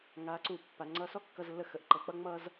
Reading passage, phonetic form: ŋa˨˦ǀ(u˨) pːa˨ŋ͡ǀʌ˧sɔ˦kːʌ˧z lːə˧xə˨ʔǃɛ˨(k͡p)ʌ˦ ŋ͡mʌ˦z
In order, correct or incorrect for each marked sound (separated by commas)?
correct, correct